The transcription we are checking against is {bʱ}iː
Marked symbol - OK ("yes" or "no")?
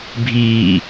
yes